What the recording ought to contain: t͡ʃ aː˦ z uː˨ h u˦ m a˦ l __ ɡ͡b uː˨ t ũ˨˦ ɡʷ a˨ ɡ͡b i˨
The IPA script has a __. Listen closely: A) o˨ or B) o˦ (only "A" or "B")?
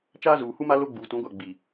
B